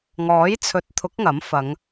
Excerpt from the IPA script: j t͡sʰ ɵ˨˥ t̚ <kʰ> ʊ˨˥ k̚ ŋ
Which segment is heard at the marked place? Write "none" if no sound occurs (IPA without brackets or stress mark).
t̪ʰ